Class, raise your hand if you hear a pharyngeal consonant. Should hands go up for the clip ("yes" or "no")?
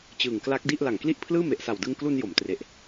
no